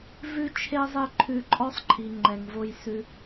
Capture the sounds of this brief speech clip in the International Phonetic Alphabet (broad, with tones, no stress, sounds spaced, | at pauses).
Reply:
v ʉ˦ t͡ʃʰ e˦ zˤ e˦ ǃʰ ʉ˧ ǃʼ ɔ˦ sˤ ǃʰ i˨ ŋ͡ǃ ɛ˨ ŋ v o˧ j s ʉ˧